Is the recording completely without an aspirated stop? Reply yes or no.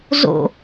yes